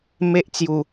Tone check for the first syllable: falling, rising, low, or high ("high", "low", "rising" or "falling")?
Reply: high